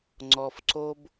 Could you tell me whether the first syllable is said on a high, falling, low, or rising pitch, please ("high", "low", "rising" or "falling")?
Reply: low